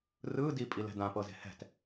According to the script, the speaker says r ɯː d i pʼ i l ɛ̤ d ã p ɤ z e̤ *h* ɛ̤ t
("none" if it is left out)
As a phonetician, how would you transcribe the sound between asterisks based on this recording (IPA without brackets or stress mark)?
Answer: h